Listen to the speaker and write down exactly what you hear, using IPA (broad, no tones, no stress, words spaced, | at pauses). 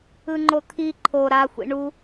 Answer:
ɯŋ͡ǃot̪ʰi ǃʰo ɾa xʷḭɳu